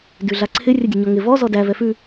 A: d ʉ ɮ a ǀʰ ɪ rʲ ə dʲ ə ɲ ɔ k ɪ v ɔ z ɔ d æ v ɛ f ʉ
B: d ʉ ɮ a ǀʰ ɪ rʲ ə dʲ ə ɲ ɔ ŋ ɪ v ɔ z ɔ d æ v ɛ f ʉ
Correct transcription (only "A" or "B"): B